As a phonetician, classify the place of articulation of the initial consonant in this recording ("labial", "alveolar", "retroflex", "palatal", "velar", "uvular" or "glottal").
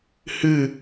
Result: glottal